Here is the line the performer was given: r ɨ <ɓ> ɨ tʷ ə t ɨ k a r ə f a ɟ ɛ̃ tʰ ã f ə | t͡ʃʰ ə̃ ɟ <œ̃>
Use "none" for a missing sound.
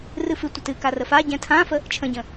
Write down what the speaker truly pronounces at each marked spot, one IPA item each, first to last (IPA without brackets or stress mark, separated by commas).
f, ə̃